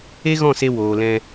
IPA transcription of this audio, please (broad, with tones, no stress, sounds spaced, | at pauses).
e˦ ɣ ɔ̃˦˨ s e˧ w oː˨ l ɛ̃˧